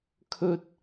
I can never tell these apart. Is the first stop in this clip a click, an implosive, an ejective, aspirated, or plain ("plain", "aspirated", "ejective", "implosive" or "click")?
aspirated